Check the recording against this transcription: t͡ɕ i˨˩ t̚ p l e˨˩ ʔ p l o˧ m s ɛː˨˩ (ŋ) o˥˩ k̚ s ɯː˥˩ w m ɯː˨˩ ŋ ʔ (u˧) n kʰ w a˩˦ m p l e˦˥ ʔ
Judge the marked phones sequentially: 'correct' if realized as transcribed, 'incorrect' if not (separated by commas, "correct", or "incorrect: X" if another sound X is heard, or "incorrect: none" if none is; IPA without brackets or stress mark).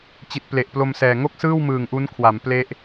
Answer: correct, incorrect: u˦˥